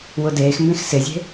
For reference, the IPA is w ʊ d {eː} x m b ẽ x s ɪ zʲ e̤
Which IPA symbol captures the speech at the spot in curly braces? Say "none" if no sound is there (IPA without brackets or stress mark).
eː